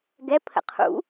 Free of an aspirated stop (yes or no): no